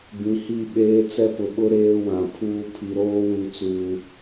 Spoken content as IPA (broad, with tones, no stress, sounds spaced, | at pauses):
b ĩ˨ h i˦˨ ɓ eː˦ t͡s ɛ˦ p ʊ˨ ɓ ʊ˦ ɾ eː˦ w ã˨ pʰ uː˦ pʰ i˨ ɾ oː˦ w u˨ t͡s uː˨